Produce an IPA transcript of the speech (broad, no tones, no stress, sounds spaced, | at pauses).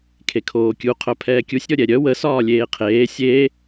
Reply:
kʰ e kʰ oː kʲ u qʰ œ pʰ ɛː kʲ u sʲ ɾʲ ɔ ɾʲ ɛ ɾʲ œ w ə s ɒː lʲ eː qʰ eː sʲ e